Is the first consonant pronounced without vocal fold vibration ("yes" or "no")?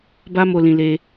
no